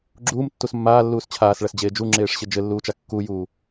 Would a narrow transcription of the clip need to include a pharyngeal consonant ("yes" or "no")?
no